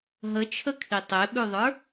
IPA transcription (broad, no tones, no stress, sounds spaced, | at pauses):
ɦ ə t͡ʃʰ ə kʰ i tˤ e ɓ ʉ ðˤ ə˞